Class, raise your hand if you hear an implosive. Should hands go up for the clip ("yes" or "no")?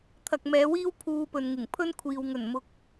no